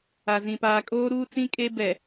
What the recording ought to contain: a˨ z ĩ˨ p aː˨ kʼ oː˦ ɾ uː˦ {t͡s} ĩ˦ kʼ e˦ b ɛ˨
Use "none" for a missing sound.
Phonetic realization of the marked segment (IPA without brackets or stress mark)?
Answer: t͡s